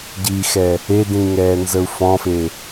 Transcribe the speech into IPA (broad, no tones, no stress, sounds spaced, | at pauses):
ɟ i x ɛ | e d ĩ ŋ ɛː n z ə u̯ f ɔ̃ f e